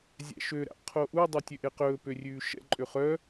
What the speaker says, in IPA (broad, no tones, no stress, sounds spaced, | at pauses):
zʲ æ̰ ʃ ø ɾ æ̰ qʰ o ʔ u dˤ y tʲ ø ʔ e q ɵː p ø rʲ ʉː ʃ ɛ̰ ǃʼ ø χ œ